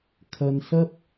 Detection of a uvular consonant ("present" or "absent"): absent